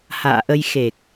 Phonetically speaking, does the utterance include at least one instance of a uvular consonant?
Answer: no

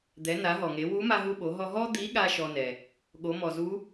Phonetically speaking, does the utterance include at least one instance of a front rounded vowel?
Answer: no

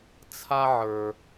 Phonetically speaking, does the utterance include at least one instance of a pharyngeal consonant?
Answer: yes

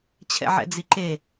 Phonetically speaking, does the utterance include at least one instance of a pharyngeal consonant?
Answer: yes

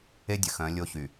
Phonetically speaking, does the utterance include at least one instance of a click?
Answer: no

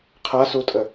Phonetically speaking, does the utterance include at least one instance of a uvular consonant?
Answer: yes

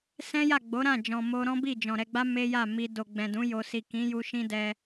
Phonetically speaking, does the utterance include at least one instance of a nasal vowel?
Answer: yes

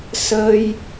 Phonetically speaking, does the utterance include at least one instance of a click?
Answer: no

